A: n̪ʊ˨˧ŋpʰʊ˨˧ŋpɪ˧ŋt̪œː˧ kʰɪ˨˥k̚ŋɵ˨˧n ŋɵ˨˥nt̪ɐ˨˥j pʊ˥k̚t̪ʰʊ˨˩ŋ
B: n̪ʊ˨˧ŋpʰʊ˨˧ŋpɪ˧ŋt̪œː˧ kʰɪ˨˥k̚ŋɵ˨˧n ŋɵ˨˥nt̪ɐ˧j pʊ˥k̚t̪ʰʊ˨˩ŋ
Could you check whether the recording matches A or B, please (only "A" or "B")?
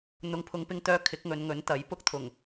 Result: A